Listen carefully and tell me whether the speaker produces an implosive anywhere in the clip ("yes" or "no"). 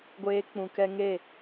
no